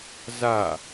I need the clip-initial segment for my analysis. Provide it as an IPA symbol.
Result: z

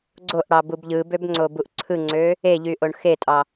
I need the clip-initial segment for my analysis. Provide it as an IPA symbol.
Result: ɡ͡ǀ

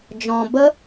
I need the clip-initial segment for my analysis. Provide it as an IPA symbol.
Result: d͡ʒ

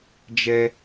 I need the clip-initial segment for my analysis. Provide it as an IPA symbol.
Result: d͡ʒ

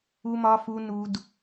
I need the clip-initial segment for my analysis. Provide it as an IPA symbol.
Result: u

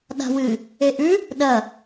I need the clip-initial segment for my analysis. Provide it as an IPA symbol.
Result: ɗ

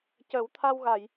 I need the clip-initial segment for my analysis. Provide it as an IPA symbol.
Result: c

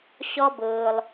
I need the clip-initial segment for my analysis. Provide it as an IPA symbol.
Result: ɕ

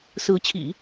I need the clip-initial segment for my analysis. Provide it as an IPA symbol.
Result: s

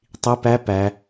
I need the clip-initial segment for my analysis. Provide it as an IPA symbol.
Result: tˤ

